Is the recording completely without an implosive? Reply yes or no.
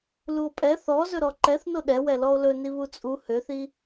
no